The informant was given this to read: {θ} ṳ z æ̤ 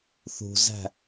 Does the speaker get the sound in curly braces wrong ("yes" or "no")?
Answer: no